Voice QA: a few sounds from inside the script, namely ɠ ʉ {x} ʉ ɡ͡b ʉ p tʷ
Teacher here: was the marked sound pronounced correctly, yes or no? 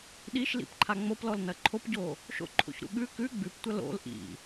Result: no